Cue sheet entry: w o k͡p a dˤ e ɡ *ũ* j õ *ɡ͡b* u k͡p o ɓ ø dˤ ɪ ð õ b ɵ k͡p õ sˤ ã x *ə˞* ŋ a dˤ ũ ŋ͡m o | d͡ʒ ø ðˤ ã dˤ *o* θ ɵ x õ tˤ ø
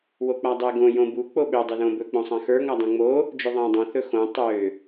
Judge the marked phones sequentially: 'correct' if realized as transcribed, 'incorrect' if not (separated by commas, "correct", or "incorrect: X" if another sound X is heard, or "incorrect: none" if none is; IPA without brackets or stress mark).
incorrect: õ, incorrect: b, correct, incorrect: õ